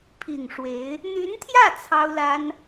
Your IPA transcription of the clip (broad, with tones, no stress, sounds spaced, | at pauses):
pʰ i˨˩ ŋ ʂ w e˧˥ ɪ̯ | n̪ y˧˥ n t̪ʰ j ä˥˩ t͡sʰ ɑ˥ ʊ̯ l a˥ n